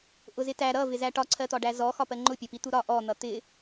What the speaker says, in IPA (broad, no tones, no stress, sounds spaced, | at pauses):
ʔ ʊ z ɪ t æ ɾ ʌ v ɪ z æ ʈ ɒ ǀʰ ɜ t̪ ɒ ɖ æ z ɔ x ɒ p ɜ ŋ͡ǃ ʊ pʲ ɒ p i t̪ u ɾ ɒ ʔ ɔ n̪ ʌ t̪ ɪ